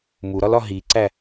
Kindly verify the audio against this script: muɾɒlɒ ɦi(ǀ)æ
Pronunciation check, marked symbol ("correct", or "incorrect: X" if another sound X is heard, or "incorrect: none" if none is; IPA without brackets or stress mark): correct